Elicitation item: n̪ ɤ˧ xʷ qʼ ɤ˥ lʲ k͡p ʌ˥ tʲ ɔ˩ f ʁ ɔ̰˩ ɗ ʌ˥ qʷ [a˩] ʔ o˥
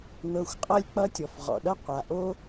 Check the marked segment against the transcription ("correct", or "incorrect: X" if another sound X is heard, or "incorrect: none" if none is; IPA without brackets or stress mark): correct